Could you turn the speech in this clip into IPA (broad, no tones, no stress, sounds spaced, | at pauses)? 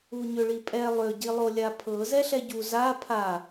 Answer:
u ɲ ʏ ɭ i pʼ ɛ lˠ ʏ ɟ i lˠ o lʲ a pʰ ɤ z ɛ ɬ ɛ ɟ u z a pʰ a